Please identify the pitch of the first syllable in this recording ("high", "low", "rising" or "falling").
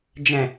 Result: low